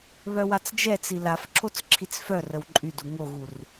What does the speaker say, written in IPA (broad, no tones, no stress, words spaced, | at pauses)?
βœwat͡sd͡ʒɛt͡si laf ǁʰot͡sǁʰit͡sfœrəw ǃʼydu ŋoɣur